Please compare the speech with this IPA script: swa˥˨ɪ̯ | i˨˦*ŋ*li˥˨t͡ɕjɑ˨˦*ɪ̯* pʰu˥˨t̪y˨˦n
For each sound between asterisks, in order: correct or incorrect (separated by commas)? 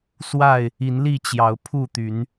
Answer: incorrect, incorrect